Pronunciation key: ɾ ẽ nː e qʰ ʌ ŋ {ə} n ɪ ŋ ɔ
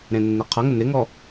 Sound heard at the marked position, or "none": ə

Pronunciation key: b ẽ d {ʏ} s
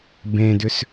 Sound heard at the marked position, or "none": ʏ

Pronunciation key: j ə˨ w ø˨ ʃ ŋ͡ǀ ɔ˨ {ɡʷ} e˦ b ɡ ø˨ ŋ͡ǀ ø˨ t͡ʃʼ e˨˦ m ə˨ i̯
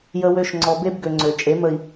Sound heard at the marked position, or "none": b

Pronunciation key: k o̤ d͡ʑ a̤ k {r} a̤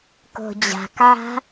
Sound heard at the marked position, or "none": ʕ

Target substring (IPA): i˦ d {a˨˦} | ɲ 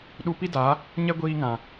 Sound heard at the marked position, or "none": a˨˦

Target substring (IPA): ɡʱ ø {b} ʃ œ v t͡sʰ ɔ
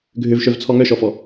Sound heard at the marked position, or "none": v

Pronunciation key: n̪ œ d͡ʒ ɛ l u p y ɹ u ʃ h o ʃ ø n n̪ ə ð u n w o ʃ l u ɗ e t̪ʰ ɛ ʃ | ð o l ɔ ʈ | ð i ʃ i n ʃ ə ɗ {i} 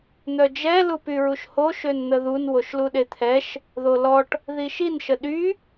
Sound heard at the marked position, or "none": y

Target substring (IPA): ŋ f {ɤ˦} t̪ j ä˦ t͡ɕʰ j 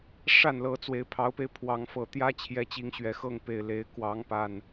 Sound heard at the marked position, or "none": ɤ˨˩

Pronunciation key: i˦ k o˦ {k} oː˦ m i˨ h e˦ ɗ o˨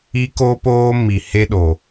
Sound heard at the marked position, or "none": p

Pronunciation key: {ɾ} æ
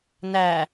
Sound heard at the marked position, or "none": n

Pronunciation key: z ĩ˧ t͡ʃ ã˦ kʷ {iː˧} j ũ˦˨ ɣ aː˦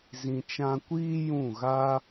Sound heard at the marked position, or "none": iː˦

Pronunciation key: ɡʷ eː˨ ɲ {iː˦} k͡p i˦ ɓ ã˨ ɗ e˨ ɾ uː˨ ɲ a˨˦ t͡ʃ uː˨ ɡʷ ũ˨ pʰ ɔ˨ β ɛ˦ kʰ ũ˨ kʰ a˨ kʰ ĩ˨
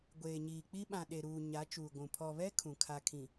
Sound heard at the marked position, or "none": iː˨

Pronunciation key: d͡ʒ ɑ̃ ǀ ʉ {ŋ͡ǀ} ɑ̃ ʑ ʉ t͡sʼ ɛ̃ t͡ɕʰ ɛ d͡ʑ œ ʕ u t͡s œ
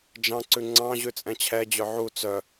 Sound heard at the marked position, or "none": ŋ͡ǀ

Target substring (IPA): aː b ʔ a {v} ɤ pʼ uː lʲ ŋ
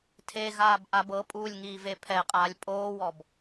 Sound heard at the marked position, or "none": b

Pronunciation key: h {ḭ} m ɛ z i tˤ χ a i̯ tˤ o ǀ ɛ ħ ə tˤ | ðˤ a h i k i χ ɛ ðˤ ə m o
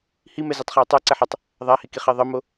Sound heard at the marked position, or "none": i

